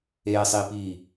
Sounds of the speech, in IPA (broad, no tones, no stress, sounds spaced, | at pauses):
eː sˤ iː p iː